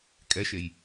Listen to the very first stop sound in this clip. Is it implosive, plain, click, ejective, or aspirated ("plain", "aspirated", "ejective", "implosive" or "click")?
ejective